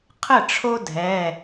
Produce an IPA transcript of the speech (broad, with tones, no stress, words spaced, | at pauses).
qʰə˥˨ʈ͡ʂʰo˦ dʱɛ˩˧˩